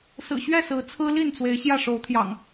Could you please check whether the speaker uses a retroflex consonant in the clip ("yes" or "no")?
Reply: yes